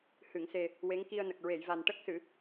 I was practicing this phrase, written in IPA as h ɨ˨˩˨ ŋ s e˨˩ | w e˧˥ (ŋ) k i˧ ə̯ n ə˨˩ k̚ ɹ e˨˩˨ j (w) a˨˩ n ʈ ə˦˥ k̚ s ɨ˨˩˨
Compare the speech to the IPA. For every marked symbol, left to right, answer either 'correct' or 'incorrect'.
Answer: correct, incorrect

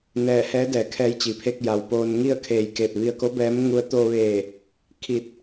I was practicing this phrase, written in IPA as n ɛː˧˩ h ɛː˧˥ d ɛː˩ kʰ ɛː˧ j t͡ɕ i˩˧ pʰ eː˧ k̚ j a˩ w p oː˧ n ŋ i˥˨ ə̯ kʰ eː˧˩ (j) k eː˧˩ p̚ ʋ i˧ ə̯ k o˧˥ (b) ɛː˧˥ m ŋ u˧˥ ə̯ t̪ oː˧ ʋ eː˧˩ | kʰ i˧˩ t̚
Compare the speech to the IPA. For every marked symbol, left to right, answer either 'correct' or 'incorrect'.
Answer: correct, correct

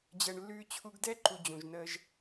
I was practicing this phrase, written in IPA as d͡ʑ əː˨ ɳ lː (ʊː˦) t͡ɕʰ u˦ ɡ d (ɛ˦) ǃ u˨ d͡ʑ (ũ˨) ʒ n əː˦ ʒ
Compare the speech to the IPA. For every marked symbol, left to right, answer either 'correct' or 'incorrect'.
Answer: incorrect, correct, correct

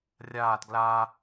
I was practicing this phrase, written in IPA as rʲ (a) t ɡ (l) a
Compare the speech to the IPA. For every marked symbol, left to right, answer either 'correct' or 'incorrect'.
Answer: incorrect, correct

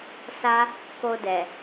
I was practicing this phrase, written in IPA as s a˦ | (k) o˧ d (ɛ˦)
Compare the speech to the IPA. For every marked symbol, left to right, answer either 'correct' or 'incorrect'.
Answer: correct, incorrect

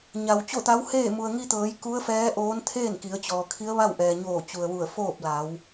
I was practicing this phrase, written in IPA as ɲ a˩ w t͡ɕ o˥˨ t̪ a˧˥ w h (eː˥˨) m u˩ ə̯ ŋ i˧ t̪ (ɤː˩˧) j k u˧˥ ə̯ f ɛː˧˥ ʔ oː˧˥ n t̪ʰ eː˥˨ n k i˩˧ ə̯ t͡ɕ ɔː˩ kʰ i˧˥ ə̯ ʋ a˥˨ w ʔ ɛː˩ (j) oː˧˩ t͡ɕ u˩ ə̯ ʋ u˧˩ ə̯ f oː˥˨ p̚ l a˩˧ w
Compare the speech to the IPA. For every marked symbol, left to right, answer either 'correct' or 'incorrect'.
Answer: correct, correct, incorrect

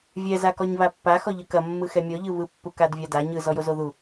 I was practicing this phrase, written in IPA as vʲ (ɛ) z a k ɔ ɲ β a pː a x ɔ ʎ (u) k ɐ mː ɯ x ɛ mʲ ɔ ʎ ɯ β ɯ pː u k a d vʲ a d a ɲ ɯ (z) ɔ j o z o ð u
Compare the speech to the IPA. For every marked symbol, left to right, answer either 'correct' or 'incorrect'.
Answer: correct, incorrect, correct

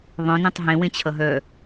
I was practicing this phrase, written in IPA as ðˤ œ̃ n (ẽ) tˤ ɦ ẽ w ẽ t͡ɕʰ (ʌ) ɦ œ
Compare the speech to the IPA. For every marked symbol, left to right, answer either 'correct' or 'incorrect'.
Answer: correct, correct

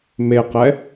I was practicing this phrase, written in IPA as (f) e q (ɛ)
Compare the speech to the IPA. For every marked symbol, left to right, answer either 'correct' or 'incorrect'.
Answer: incorrect, correct

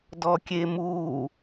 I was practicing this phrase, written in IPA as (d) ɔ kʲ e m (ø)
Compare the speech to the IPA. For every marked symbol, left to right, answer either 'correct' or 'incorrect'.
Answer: correct, incorrect

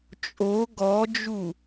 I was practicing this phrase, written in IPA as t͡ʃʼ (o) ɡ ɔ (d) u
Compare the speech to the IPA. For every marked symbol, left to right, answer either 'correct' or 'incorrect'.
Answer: correct, incorrect

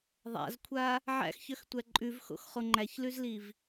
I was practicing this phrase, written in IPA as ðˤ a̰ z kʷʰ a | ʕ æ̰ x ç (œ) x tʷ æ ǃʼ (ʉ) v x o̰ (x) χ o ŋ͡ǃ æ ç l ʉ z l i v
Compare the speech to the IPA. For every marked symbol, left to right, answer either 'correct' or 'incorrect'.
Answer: correct, correct, correct

